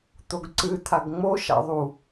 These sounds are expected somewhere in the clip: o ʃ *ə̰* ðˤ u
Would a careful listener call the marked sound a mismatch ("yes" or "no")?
yes